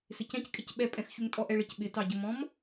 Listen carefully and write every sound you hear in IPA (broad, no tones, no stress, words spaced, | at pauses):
sɪcɛ̃ckʼɪc ɓɛpʼɛ̃xçuŋ tʼɔʔɛɭɪc ɓɪtɑɟəmɔ̃m